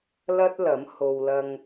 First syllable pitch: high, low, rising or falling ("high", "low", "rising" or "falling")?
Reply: high